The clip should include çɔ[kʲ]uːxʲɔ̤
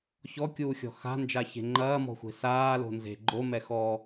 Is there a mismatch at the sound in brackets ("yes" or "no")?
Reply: no